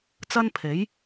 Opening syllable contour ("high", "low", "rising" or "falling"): high